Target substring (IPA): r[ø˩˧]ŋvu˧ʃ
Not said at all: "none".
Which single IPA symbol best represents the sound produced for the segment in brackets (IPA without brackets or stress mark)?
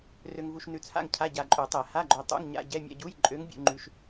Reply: ø˧